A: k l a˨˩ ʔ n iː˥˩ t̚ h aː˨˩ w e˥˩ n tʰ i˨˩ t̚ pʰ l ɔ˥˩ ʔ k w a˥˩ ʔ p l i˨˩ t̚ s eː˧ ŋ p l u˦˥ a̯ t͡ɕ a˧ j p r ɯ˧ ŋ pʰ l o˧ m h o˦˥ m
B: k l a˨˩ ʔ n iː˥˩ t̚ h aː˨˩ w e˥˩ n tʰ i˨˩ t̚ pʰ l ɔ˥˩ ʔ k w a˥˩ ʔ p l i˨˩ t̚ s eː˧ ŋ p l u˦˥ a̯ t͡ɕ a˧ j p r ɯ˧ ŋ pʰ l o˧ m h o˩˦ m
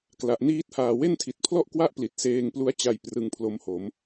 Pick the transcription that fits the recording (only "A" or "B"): B